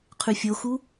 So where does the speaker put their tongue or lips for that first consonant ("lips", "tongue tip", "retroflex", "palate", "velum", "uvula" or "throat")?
uvula